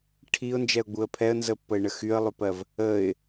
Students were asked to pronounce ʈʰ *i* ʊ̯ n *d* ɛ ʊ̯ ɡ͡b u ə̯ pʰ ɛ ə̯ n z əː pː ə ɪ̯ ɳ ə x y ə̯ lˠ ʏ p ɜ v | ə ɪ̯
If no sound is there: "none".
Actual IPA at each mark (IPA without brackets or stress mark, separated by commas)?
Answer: iː, d͡ʒ